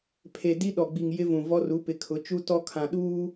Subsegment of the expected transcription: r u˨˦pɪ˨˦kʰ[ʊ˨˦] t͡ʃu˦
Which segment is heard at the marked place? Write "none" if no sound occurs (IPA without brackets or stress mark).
ʊ˨˦